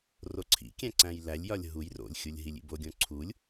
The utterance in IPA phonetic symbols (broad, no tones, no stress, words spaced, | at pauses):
roǀʰḭkʲæ̃ ǀæ̃jlælʲjɒlʲ ɦuj ro̰lʲxʲulʲ ɦilʲḭboɡʲõ ǀʰulʲ